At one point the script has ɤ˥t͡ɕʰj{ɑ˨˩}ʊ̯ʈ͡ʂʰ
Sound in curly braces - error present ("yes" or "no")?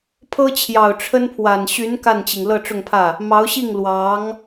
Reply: no